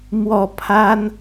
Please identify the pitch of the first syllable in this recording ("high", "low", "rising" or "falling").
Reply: falling